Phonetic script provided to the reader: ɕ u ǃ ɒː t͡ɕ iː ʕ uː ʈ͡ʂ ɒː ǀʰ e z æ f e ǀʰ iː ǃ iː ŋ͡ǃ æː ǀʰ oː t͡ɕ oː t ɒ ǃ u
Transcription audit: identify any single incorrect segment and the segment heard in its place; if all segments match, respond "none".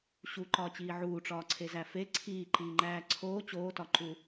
none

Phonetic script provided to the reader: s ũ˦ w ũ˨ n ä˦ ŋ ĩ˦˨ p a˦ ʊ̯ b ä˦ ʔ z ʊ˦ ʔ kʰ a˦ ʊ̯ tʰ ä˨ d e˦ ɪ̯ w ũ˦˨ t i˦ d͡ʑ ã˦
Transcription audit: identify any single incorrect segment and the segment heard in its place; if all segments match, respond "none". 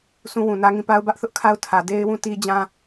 z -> θ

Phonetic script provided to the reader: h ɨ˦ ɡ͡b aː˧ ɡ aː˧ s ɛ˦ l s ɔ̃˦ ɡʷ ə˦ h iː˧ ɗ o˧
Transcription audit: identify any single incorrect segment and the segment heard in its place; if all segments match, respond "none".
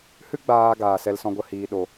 none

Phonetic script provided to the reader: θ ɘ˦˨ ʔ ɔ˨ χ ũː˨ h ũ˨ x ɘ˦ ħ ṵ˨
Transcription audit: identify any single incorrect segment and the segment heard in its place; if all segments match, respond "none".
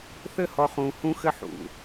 ʔ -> h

